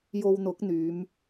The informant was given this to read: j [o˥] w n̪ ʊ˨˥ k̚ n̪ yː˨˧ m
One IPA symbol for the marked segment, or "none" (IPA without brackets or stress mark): o˧